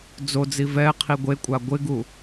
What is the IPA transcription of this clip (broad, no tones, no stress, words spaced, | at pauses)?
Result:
d͡zod͡zi vɛ qʰiɡʷekʷʼa ɡʷɪɡu